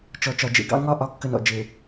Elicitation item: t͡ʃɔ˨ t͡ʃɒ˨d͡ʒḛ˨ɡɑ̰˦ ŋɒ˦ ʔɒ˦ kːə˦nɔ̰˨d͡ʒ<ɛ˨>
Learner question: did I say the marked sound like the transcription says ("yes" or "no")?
no